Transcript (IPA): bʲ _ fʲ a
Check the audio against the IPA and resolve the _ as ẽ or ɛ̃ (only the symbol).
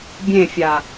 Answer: ẽ